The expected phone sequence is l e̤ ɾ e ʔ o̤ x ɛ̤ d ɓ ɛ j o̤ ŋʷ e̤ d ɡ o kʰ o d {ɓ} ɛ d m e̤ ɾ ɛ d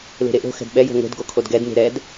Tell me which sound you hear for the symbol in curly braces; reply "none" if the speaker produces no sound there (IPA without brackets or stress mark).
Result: ɡ